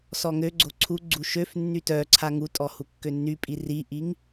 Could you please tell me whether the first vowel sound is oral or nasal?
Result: oral